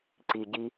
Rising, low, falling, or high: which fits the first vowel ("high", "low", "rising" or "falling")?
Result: low